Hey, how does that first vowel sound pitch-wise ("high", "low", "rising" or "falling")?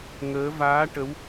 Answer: rising